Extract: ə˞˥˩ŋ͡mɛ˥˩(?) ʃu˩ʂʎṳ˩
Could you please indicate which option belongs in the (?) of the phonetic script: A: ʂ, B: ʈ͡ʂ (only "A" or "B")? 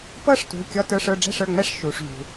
A